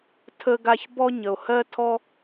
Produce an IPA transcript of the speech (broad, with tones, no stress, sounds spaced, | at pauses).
tʰ ə˧ ɡ a˧ ç b ɔ˧ ɲ ə˩ o̯ h ɜ˧ tʰ ɔ˧